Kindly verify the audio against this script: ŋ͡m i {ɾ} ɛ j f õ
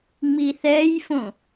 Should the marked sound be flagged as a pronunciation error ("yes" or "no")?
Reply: yes